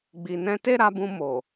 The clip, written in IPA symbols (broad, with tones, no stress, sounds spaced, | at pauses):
ɡ͡b i˨ n ɛ̃˧ t e˦ ɾ a˧ b ũ˧ m o˨